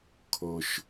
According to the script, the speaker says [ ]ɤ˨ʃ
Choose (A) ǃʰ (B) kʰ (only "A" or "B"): B